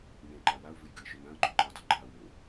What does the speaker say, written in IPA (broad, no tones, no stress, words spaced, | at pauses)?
nẽǃa waʊ̯vɨjɡɨɪ̯ʃɵ nãə̯ɡ͡ǃuǃɨɪ̯dˤɵ ɡ͡ǃa wo